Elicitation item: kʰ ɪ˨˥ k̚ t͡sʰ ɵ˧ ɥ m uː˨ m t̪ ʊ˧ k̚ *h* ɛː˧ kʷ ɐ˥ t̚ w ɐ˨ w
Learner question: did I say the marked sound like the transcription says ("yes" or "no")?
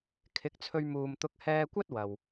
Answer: yes